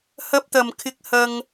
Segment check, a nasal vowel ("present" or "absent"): absent